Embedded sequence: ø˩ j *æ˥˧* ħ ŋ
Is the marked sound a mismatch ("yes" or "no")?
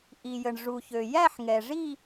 no